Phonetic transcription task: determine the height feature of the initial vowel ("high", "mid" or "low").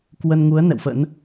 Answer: mid